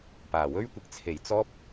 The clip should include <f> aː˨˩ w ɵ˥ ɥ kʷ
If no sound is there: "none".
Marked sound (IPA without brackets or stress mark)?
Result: p